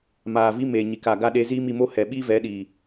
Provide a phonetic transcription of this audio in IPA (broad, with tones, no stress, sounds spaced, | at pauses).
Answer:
m aː˨ v i˧ m e˨ ɲ i˨ k a˨ ɡ a˦ ɗ e˧ z iː˦ m i˧ m o˦ h ɛ˨ ɓ i˦ v ɛ˨˦ ɗ iː˨